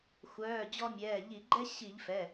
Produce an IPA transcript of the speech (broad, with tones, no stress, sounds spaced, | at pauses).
xʷ œː˩˧˩ d͡ʑ ɔ˧ mʲ ɛː˩˧˩ ʎ i˧˩˧ ɡ͡ǃ ɛ˥ ɕ i˧˩˧ ʎ f ɛ˩˧˩